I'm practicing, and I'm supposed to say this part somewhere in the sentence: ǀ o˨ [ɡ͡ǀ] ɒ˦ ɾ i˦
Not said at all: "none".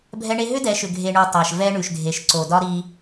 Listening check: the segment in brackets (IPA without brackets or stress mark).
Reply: d